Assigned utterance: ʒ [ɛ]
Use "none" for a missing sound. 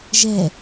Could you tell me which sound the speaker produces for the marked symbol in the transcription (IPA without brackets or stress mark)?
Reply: ɛ